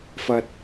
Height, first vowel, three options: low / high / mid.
low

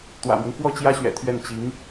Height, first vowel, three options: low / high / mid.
low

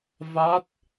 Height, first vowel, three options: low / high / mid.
low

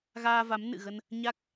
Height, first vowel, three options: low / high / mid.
low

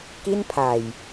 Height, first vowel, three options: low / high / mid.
high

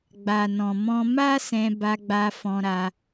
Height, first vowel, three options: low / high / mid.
low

